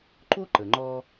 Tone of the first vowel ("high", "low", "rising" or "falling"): high